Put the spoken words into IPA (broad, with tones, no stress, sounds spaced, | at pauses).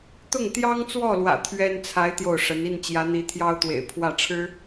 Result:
t̪ ʊ˥˩ ŋ t̪ j ɑ˥ ŋ t͡s w ɔ˥˩ l w ä̰˨˩ t̪ʰ ɥ ɛ˥ n t͡sʰ a˧˥ ɪ̯ t̪ j o˥˩ ʊ̯ ʂ ə˧˥ n i˥˩ n t͡ɕ j ä˧˥ n̪ i˧˥ t̪ʰ j ɑ˥ ʊ̯ t̪ w ḛ˨˩ ɪ̯ pʰ w ä˥˩ ʈ͡ʂʰ ɻ̩˥